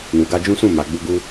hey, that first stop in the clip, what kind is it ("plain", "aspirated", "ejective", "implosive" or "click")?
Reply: plain